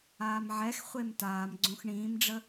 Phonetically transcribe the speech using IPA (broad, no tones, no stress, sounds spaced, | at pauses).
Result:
aː m ʕ ɛ x χʷ e m t aː m ɡ͡ǀ õ x ɳ ĩː m ɖ͡ʐ ə